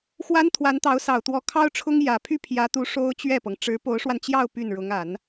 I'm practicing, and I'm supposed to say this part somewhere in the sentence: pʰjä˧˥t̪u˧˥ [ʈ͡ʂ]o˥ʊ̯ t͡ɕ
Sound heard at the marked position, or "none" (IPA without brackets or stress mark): ʂ